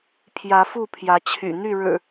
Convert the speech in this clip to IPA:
pʰjä˨˦fu˥˨pʰjä˨˦ t͡ɕʰy̰˨˩n̪y˥˨ɻɻ̩˨˩

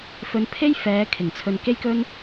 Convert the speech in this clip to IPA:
fɵ˧npʰe˥j fɛː˨˧ kʰɪ˨˩ŋt͡sʰɵ˧n ke˥jkɵ˥n

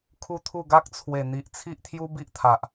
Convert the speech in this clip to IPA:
kʰu˦t̪ʰu˥˧ ɡa˦k̚t͡sʰwe˨˩n̪i˨ʔ t͡sʰi˦ʔt̪ʰju˦bi˦ʔt̪ʰa˨ʔ

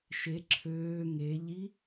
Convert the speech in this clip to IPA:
ʃe ǁʰøː ŋeʎi

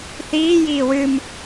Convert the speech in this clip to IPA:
θiː jiːwɨm

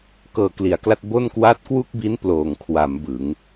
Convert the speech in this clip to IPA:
kɤː˨˩kli˩˦a̯kla˥˩t̚ bo˥˩nkwa˥˩t̚ kwu˥˩k̚bi˦˥n ploː˨˩ŋ kʰwa˩˦m bɯ˩˦ŋ

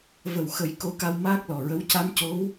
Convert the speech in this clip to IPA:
və˨˩wxə˨˩˦j ko˧ka˧w maː˦˥k̚lɔ˨˩ɹə˧˥w ca˧mco˧˥w

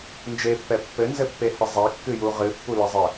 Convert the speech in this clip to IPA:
nd͡ʒepːɛ pːɘnzɘpːehɘ zˤɛkːɨju ʁɨpːulɘzˤɘ

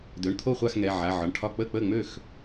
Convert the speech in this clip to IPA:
dø˩˧˩ɳt̪ʰo˥˩χʷa˥˩x ŋɛ˩˧˩ ʕa˩˧˩ ʕɒ˩˧˩ɳʈʰɒ˥˩ k͡pə˥˩k͡pə˥˩ŋ͡mø˥˩x

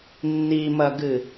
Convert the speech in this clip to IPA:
nːimɐɡɨ

